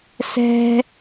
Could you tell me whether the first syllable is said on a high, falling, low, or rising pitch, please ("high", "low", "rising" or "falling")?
high